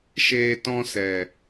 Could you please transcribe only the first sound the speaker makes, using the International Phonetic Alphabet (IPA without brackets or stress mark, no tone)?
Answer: ʃ